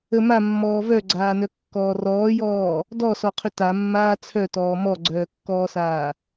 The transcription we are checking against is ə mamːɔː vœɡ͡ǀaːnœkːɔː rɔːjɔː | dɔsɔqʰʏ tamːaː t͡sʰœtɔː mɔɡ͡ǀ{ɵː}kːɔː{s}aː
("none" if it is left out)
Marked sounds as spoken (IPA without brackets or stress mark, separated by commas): œː, s